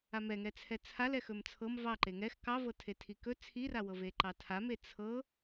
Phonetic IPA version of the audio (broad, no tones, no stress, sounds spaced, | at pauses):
a m ɛ ŋ ɛ t͡sʰ ɛ t͡sʰ a l ɛ x ɵ m t͡sʰ ɤ m v ɑ ǃ e ŋ ɛ x k ɑ v ɤ tʰ e tʰ i k ɵ t͡sʰ i r a w ɤ v e ǃ ɑ tʰ a m e t͡sʰ ɤ